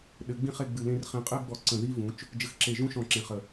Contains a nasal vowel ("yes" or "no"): yes